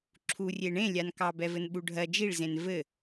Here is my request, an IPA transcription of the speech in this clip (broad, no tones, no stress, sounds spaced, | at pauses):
ǁʰ u rʲ e ɳ ẽ lʲ a n k ɑ b ɛ v ɘ n ɓ u ɖʱ ɜ d͡ʒ i ɭ z ẽ n v ɘ